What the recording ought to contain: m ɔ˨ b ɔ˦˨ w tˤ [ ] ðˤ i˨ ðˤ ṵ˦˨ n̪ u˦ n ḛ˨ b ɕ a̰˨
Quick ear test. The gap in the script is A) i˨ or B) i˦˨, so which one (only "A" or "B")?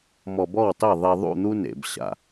B